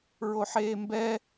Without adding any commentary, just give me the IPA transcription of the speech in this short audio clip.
ɹ o ħ eː m b ɛ

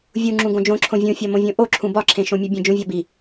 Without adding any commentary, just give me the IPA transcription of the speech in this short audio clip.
vʲ u ŋ͡ǁ ũ ɡ õ d͡ʒ õ ǁʰ õ vʲ ũ fʲ ɒ m õ vʲ õ ʔ o ǁʰ ũ b ɒ ǁʰ ẽ ʃ õ mʲ u bʲ ẽ d͡ʒ ũ vʲ ɒ b i

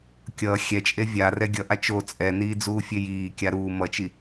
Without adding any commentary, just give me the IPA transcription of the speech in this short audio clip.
kʲ ʌː xʲ ɛ t͡ʃʼ e vʲ a r ɛ ɡʲ ʌ ʔ a t͡ʃ o t͡sʼ ɛ n iː d͡z uː fʲ e j iː kʲ a ɾ uː m ʌ t͡ʃ i

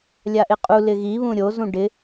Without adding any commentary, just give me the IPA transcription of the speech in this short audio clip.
lʲ a ʔ ɪ qʼ u l ɪ ɣ i β ũ ɾʲ o z ũ ɖ ɪ

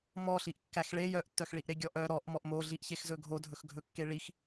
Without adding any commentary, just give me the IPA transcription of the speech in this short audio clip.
m ɔ ɬ i ʔ kː æ x ɭ e j œ ʔ tː œ x ɭ i ʔ ɾ e ɡʲ ɔ ʔ œ ɾ ɔ ʔ m ɔ ʔ m o ɮ i ʔ ç e x z ɵ ɡʱ o dʱ ɵ x ɡʱ ɵ kː e ɭ i x

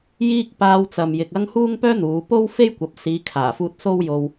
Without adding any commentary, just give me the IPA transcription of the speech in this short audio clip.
j iː˥ k̚ p aː˧ w t͡s ɐ˨ m j ɪ˨ k̚ ɐ˥ ŋ h uː˥ ŋ p œː˥ n̪ uː˨˧ p o˥ w f e˥ j kʷ ɐ˨ p̚ s iː˨˧ kʰ aː˨˩ f uː˧ t̚ s o˥ w j o˧ w

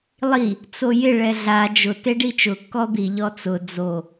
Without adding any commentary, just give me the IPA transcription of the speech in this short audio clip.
lˠ i | t͡s o j ɪ ɭ ɛ ɮ a d͡ʒ ʊ t e ɖ i t͡ʃ ʊ kː ɔ d̪ i ʎ ɔ t͡s ʊ d͡z o

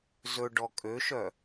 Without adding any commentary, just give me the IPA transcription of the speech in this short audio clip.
z ɵ ɖ ɔ kʼ ø ʃ œ

